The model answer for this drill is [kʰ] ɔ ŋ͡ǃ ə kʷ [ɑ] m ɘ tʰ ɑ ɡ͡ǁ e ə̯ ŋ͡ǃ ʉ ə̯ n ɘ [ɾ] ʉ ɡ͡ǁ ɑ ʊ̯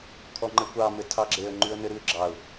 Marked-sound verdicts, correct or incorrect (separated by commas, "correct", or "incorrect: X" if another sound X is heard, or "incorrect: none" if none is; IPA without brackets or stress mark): correct, correct, correct